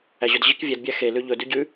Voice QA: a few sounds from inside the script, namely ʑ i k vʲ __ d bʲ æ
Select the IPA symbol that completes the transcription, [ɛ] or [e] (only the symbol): ɛ